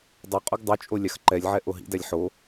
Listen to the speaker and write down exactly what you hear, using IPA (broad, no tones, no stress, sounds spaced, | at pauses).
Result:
dˤ o qʼ u ɡ dˤ ʉ t͡ʃʼ o lʲ ɑ x ǃ ɛ lʲ ʕ ɛ ʔ o ɦ ḭ d æ lʲ ħ o